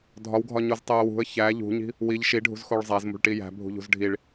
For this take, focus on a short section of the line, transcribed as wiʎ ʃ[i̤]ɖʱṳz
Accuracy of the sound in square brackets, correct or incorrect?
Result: incorrect